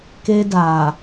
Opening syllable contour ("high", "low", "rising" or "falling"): high